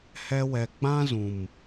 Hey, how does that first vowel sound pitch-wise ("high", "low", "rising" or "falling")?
high